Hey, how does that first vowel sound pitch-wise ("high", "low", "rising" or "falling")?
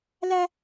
high